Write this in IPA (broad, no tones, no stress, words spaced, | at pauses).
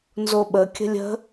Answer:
nzoɓəkʲə̤ lʲə̤